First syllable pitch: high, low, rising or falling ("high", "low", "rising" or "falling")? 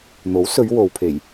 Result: rising